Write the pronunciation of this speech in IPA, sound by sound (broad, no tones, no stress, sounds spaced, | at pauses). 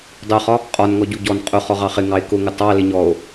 dˤ ʊ χ ɒ | qʼ ɒ n ŋ ɔ ɟ u ɟ ɔ n qʼ ʊ χ ɔ ʁ ɑ χ ɪ ŋ ɑ e̯ k ʊ ŋ ə tˤ ɑ l ɪ ɲ ɔ o̯